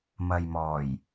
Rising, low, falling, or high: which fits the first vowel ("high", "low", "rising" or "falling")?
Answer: low